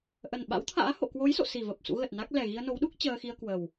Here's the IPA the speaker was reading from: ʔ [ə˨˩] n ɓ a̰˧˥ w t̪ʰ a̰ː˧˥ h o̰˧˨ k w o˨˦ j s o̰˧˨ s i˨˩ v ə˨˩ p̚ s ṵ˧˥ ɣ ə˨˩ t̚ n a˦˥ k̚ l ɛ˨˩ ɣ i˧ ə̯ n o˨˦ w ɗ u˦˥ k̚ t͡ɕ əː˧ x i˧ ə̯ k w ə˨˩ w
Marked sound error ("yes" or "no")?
no